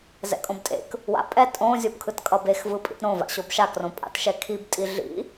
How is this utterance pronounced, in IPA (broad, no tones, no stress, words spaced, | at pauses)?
zɛ̰kʼõbtʼḛk | wa̰pʼɛ tʼõ zʲopkʰɯtkʼʌbex vɯpʼḭtɾõ va̰ɕobʃa krõpʼa̰tʃɛkʰib tʼiɮḭ